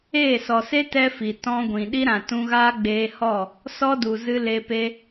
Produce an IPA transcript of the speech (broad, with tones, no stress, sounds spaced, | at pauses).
eː˦˨ s ɔ˨ s e˦ t ɛ˦ f i˨ t ɔ̃˧ ɡʷ ĩ˨ ɗ i˦ ɾ ã˨ t ũ˧ ɣ aː˦ ɡ͡b eː˧ h ɔ˦˨ | s ɔ˦ d u˨ z ɨ˧ l e˧ p e˦